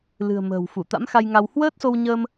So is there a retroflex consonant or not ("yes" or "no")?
no